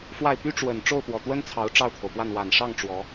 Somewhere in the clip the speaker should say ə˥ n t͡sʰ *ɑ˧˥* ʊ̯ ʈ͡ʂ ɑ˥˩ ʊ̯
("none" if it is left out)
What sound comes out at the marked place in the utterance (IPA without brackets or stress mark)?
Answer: ɑ˧˥